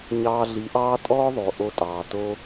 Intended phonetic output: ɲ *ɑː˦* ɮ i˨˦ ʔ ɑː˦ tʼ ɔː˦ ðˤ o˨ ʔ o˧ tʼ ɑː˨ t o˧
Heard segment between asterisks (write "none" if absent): ɑː˧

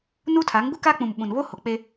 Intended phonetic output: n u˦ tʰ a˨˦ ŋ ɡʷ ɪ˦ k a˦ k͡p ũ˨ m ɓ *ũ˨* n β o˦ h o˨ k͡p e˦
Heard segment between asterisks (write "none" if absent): ũ˨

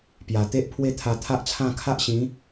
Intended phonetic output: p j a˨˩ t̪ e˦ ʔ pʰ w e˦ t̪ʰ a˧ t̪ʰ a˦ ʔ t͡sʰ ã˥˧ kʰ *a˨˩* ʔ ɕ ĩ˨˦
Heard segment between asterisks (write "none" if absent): a˦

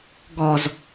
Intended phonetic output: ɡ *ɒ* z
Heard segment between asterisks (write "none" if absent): ɒ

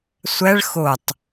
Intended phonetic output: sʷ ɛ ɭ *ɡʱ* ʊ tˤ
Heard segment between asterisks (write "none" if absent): x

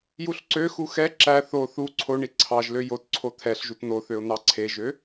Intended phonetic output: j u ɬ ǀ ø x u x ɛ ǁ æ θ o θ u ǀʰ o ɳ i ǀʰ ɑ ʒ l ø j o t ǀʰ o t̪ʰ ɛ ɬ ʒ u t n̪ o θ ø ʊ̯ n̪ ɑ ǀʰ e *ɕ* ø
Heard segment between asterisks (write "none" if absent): ʒ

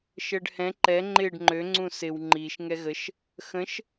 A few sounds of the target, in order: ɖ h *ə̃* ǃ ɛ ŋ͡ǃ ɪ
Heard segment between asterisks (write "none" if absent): ɛ̃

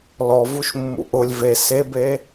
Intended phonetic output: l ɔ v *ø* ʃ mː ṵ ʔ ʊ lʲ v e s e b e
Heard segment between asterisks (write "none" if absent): u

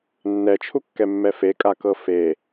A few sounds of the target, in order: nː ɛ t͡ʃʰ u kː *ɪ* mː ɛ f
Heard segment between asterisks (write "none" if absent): ɛ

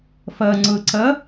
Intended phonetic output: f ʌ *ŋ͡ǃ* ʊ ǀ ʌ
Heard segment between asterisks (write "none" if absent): ŋ͡ǀ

